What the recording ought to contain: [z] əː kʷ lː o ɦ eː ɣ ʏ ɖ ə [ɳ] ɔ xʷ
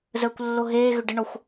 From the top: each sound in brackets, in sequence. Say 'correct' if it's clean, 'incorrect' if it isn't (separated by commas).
correct, correct